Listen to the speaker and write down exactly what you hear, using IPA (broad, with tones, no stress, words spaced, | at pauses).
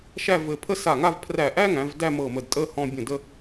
ʃæ˥˧vɘ˧pʰə˥ sa˧˩ ŋa˥˧vpʰræ˧˩ʔæ˥ŋæ̃˩˧v dæ˥˧mɤ˧˩mə˧˩dtʼə˥˧ hɔ̃˧bʲə̃˧˩ də˥˧